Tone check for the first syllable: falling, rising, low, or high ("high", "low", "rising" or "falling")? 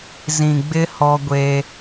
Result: low